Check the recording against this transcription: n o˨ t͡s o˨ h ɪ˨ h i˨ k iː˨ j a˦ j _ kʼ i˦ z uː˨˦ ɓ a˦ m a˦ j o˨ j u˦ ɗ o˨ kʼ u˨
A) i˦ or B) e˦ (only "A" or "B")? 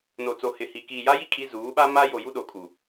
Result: A